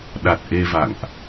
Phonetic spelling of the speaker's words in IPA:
ɗ a˨˩ t̚ ʔ e˧ v a̰˧˨ ŋ ʔ

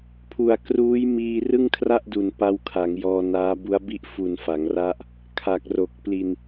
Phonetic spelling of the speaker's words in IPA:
pʰ u˨˩ a̯ k r uː˦˥ j m iː˧ r ɯ˥˩ ŋ kʰ r a˥˩ ʔ d u˨˩ n p a˦˥ w kʰ a˩˦ ŋ j ɔː˧ n aː˦˥ b u˦˥ a̯ b i˥˩ ʔ f u˨˩ n f a˩˦ ŋ r a˦˥ ʔ | kʰ a˨˩ k̚ r o˨˩ k̚ p l i˧ n

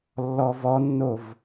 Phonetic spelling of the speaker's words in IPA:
lː ɔ v ɔ nː o v

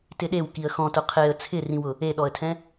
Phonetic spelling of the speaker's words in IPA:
t ɪ ɗ e w k i ə̯ x ɔ̃ t ʊ qʰ e ə̯ t͡sʰ ɪ r ĩ w ʊ | e ɗ ɔ ə̯ tʰ ɛ̃

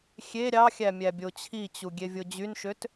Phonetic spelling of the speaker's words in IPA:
xʲ e ɾʲ ɑ xʲ æ mʲ æ bʲ o t͡ɕʰ i t͡ɕ u ɡʲ e vʲ o d͡ʑ y n ʃ ø t

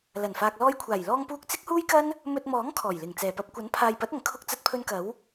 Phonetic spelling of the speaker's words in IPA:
l ɐ˨˩ n f aː˨ k̚ l ɔː˧ j kʷʰ aː˨˩ j l ɔː˧ ŋ p uː˧ k̚ t͡s ɪ˥ k̚ h uː˥ j k ɐ˥ n | m ɵ˧ t̚ m ɔː˨˥ ŋ kʰ ɔː˨˩ j l ɪ˨˩ ŋ t͡s ɛː˨˩ p ɐ˧ p̚ kʷ ɐ˨˥ n pʰ aː˨ j p ɐ˨˥ t̚ ɐ˨˩ ŋ kʰ ʊ˧ k̚ t͡s ɐ˧ t̚ pʰ ɵ˧ n k ɐ˨˥ w

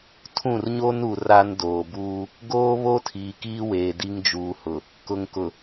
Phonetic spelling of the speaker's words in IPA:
tʰ ũ˦˨ r ɲ o˦ n u˨ r a˦ n d oː˨ b uː˦ | ɡ oː˦ β o˦ tʰ iː˨ k iː˦ w eː˨ d i˦ ŋ d͡ʒ uː˨ h ʊ˨ | k ʊ˨ ŋ k ʊ˨

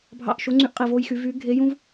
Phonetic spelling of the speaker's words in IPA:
bʱ ɑ̰˦˨ ʔ ʃ o˧˥ ŋ͡ǀ y˦˨ ʔ qʼ i˦˨ v oː˥ j x y˧˥ v yː˧˥ ɡʱ e˧˥ j ũ˥ v

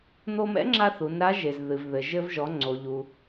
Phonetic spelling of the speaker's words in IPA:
n̪ o˧ m ɛ̰˧˥ ŋ͡ǁ a˧ θ u˩˧ n ɾ a˧˥ ʒ e˩ z ð ɨ˩ v ð ɘ˩ ʒ ɘ˧ v ʒ ɔ˩˧ ŋ͡ǀ o˩ ʎ u˩

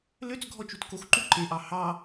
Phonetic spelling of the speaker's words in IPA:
l ø t͡s ɡʱ ɔ t͡ʃ u t k o x ǃ u ǃ e ʔ ɑ h ɑ

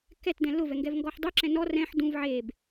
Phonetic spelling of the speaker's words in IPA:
k ɛ t d ɛ̃ l ʊ v ɛ ŋ ɡ ɛ v ŋ ɡ ɔ ħ dˤ u ǁ ɛ̃ n ɔ r ɛ̃ ħ d ũ v ʕ e b

